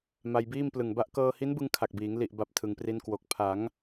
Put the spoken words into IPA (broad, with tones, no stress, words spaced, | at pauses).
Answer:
ma˧jbiː˥˩mplɯ˨˩ŋba˥˩ʔ kɤː˧hi˦˥nbɯ˧ŋ kʰa˨˩k̚biː˩˦ŋ li˨˩ʔba˨˩p̚ tʰɯ˩˦ŋpri˦˥nkwo˨˩k̚ pʰa˩˦ŋ